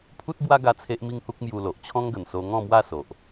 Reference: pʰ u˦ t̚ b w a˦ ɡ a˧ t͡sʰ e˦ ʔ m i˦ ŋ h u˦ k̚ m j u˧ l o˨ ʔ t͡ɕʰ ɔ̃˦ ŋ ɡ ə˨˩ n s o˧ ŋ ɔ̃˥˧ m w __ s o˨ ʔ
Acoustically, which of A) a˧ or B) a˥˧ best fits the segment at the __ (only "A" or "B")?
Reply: B